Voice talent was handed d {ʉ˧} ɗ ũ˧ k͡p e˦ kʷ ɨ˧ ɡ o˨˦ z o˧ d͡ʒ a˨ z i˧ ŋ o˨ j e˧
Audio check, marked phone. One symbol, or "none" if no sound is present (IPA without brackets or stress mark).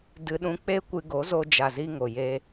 ɨ˧